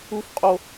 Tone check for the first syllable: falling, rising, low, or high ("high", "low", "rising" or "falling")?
high